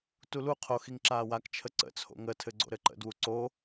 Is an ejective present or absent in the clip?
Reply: absent